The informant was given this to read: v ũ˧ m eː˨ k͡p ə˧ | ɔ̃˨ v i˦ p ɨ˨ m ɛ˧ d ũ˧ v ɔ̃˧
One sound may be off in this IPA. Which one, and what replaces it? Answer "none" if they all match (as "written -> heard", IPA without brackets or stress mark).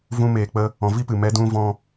none